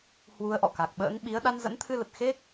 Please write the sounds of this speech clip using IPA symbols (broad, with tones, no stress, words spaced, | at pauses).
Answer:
hwu˧ə̯ʔɔ̰˧˨ ka˨˩k̚ɓə̰ː˧˥ŋ ɓi˨˦ə̯ ɗa˧nzə̰˧˥nt̪ʰɨ˧lə˨˩t̚ xe˦˥k̚